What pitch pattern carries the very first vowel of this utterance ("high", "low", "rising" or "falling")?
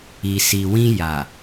low